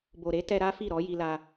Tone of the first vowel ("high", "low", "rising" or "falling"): low